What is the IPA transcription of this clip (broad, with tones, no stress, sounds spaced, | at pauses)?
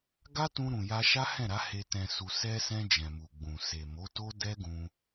ɡ a˦ t ũ˧ ɾ ũ˨ j a˧ ʃ a˦ h ɛ̃˦˨ ɾ a˨˦ h e˧ t ɛ̃˨ s u˨ s ɛ˧ s ɛ̃˧ d͡ʒ ɛ̃˨ m u˨ ɡ͡b ũ˨ s e˨ m o˨˦ t o˦ d ɛ˦ ɡ ũ˧